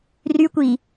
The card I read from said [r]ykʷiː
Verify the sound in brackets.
correct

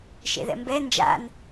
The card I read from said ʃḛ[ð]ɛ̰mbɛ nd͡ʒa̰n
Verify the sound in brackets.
correct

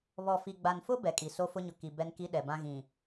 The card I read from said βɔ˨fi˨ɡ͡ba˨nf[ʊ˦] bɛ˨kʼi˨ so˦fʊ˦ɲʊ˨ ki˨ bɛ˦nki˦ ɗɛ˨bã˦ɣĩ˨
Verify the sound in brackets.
correct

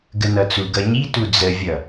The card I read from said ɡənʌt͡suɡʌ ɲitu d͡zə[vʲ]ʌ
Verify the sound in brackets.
correct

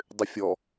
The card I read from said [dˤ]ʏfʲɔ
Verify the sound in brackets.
correct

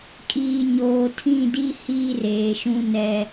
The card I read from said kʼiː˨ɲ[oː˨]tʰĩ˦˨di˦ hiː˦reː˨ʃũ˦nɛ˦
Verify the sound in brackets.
correct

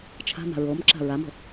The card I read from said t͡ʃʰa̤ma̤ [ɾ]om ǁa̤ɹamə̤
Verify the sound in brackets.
incorrect: ɹ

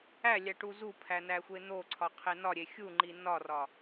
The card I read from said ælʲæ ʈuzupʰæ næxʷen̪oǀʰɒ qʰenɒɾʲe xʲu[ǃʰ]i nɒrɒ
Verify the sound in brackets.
incorrect: ŋ͡ǃ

